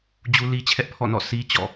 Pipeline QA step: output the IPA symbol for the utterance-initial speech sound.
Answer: d͡ʑ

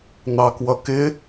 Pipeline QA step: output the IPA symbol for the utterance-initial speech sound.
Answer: n̪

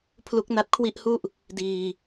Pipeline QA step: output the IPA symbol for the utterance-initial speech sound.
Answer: pʰ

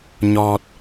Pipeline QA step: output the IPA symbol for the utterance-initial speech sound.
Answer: ɲ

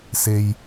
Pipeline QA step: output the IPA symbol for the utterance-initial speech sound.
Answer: s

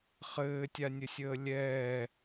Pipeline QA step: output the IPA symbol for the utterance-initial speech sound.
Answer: χ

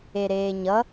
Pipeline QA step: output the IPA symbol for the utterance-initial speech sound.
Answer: e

